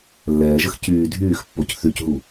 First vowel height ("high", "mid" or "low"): mid